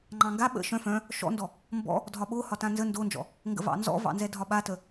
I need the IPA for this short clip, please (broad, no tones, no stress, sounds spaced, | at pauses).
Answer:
ŋ͡ǃ ɑ̃ ŋ ɡ a ɓ ə̰ ʃ œ̃ f œ̃ | ʃ ɔ̰ n d ɔ | m b ɔ̰ | dʱ ɒ ɓ o h ɒ t ã n z ə n d o n d͡ʒ ɔ̰ | ŋ ɡ ə̰ v ɑ̰ n z ɔ̰ v ɑ̰ n z ɛ dʱ ɒ ɓ a t ə